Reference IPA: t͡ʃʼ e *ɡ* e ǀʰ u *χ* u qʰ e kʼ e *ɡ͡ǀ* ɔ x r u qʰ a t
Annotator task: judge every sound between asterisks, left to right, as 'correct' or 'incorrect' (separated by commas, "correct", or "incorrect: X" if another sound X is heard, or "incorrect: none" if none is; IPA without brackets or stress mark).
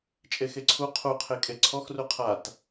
incorrect: x, incorrect: qʰ, incorrect: ǀʰ